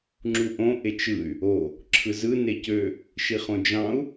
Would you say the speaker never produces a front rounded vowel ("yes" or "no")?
no